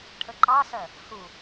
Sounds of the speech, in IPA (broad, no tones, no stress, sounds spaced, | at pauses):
ʈʰ ə ǃ ɑ s ɜ | h u